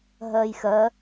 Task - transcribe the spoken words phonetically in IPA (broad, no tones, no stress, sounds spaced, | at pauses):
ɦ ɜ j x ɜ